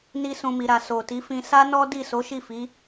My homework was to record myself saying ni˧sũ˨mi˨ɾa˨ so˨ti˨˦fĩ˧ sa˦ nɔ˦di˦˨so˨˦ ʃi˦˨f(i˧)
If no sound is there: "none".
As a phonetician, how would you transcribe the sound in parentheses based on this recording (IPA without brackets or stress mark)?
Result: i˨˦